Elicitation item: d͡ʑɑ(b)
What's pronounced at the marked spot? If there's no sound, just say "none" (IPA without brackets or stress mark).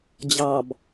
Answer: b